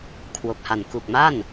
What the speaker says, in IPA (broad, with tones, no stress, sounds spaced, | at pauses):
kʰ w o˨˩ k̚ h a˨˩ n k u˨˩ k̚ m a˥˩ n